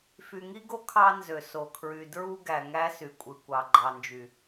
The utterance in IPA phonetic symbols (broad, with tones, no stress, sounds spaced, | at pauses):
f y˨ ŋ i˦ ɡ o˦ kʰ ɑ˦ n z ø˨ s o˨ kʰ ɹ y˨ d ɹ u˦ ɡ æ˨ ŋ æ˦ s y˨ kʷʼ ɯ˨ kʷ ɑ˨ ɡ͡ǃ ɑ˨ n d͡ʒ y˨